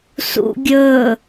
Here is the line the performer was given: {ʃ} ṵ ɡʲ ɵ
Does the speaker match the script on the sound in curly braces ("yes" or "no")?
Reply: no